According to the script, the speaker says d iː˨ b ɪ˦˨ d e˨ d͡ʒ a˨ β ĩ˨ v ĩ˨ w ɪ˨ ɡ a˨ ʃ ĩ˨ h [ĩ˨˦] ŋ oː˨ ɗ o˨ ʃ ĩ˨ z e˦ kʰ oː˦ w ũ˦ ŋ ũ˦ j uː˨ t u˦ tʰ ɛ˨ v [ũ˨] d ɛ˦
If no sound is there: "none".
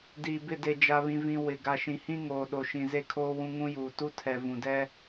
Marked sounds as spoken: ĩ˦, ũ˨

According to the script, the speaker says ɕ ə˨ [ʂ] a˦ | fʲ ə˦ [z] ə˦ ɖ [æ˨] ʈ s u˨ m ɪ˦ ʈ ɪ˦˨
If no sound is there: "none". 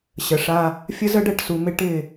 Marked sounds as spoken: ʂ, z, ɛ˨

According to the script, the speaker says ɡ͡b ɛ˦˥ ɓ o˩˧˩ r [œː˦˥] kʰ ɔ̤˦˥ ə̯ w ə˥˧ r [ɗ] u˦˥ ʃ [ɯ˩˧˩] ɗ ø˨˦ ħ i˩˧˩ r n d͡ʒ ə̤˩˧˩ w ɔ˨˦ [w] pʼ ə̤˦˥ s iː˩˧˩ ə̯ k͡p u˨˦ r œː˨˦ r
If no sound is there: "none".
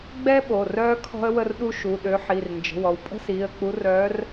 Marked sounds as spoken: œː˦˥, ɗ, u˩˧˩, w

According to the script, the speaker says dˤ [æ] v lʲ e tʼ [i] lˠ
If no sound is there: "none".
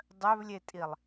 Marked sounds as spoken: œ, i

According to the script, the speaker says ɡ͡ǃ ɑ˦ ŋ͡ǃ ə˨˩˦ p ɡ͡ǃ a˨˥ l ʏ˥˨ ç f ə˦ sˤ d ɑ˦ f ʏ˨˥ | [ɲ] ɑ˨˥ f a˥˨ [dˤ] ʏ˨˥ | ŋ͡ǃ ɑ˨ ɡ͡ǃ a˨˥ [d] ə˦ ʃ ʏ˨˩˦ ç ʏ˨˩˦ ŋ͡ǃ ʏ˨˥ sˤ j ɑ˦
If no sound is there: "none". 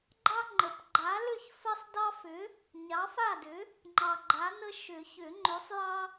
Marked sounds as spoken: ɲ, d, n

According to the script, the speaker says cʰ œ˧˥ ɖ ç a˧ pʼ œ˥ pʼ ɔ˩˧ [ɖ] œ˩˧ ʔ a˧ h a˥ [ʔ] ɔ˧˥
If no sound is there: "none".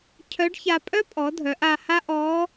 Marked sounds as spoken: dʱ, ʔ

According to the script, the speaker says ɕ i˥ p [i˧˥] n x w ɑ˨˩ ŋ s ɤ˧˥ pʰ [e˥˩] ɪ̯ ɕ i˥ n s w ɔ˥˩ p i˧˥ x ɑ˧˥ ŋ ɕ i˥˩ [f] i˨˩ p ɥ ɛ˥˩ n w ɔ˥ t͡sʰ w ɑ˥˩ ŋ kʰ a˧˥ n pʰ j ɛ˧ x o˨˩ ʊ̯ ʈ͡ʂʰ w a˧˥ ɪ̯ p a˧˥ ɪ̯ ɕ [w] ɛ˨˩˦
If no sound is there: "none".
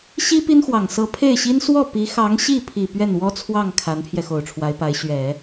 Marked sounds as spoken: i˥, e˥˩, pʰ, ɥ

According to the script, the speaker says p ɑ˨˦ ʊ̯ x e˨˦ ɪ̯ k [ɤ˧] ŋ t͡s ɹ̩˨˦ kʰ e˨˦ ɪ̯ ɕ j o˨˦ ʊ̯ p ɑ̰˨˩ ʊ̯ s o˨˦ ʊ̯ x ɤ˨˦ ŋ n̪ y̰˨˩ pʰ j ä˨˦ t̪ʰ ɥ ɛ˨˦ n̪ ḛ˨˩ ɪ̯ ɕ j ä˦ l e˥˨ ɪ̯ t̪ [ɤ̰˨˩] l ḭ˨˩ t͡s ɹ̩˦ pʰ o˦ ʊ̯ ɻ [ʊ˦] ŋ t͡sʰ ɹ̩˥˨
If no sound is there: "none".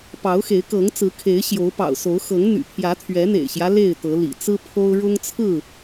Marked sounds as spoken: ɤ˨˦, ɤ˨˦, ʊ˦

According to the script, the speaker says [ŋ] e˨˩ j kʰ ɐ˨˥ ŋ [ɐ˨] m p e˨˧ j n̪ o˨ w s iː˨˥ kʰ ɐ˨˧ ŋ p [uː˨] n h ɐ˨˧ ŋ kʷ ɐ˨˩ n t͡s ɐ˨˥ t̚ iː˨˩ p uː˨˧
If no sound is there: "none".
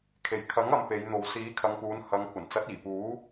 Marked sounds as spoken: kʰ, ɐ˨, uː˨˧

